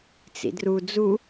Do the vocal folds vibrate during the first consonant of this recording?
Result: no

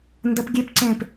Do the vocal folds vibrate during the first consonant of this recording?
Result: yes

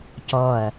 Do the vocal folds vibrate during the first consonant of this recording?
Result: no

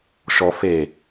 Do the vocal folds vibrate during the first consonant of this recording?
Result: no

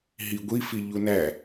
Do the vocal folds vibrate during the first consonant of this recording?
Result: yes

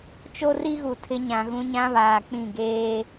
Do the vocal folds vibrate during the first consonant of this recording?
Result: no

